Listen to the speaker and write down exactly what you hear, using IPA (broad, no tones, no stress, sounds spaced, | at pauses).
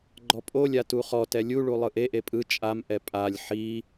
ɡ͡ǃ ɔ pʼ o lʲ a t u χ ɔ t ɛ lʲ u ɭ u lˠ ɯ ʔ e ʔ e pʼ ɯ t͡ʃʼ a m ʔ ɛ pʼ a lʲ ħ i